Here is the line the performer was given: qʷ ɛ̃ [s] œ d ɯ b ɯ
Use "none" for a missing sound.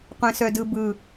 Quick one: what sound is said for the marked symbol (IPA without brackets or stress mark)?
s